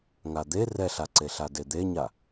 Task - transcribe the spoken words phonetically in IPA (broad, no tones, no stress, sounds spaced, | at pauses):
ŋ a d̪ e r ɛ ɬ a ǀ e ɬ a d e d̪ e ɲ a